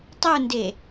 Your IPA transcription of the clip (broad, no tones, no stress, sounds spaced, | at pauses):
tˤ u n d e